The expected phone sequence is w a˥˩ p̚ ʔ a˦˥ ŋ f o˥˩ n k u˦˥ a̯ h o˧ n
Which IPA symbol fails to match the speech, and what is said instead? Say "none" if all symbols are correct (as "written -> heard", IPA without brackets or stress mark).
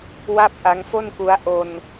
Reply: h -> ʔ